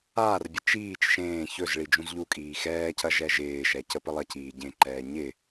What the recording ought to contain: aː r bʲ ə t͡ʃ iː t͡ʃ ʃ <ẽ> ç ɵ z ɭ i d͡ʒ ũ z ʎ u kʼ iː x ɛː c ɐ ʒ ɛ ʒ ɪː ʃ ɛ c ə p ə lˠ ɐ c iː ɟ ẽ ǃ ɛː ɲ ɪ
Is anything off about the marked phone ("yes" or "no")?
yes